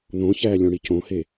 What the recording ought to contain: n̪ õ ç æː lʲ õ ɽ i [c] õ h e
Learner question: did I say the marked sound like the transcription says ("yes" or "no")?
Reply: yes